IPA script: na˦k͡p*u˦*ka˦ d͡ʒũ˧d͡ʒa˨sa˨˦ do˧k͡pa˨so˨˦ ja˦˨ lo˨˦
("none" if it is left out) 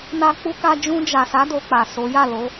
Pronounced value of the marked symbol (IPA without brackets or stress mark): u˦